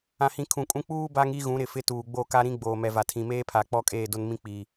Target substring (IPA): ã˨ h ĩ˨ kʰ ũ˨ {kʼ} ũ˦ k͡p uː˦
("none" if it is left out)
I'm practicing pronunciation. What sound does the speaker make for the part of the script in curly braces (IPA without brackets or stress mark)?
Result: kʼ